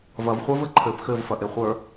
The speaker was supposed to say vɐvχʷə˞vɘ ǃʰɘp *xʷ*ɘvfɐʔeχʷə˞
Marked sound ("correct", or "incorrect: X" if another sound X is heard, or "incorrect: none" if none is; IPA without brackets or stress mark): incorrect: x